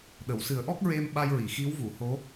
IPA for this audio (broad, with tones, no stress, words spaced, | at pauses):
ɗə˨˩˨wsɨ˨˩˦ə̯ʔɔ˦˥k̚ ɹe˧m ɓa˧jɹi˨˩˨ xi˧˥wvu˨˩˨ ho˧˥